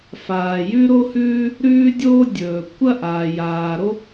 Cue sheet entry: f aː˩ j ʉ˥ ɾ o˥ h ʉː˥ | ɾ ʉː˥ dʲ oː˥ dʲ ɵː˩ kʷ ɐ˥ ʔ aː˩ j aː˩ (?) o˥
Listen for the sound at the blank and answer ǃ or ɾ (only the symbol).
ɾ